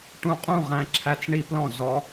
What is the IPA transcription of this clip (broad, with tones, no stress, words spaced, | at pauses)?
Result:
ʈũ˧qʼũ˦˨ʁæ̃˧ǁʰæ˧t͡s ɳi˦plɔ̃˦˨ zɔ˧